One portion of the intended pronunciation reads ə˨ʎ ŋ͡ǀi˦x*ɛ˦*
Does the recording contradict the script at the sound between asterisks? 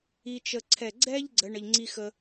yes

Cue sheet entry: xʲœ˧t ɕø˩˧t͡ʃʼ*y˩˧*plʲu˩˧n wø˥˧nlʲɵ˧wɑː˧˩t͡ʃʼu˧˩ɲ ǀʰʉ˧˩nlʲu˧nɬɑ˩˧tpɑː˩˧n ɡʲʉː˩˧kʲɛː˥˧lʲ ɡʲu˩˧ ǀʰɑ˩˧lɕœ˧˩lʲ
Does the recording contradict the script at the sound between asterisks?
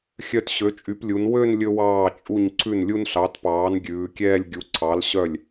no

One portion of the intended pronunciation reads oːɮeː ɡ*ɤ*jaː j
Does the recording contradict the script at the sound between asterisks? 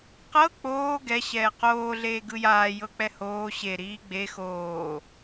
yes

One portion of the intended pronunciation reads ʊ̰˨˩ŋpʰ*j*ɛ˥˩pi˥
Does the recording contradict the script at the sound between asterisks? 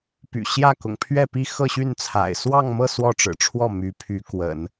yes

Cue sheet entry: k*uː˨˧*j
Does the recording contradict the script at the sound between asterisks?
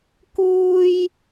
yes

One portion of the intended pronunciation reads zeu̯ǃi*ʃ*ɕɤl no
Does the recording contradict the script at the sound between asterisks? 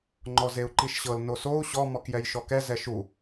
no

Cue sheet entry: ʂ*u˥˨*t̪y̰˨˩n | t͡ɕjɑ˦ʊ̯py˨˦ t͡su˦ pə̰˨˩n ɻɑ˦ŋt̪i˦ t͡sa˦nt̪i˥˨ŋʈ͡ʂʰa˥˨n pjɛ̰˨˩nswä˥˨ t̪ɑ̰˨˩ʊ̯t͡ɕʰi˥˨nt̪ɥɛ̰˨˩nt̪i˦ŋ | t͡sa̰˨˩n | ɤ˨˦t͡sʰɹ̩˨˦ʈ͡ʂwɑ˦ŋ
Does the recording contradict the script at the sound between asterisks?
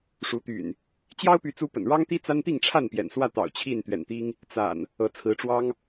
yes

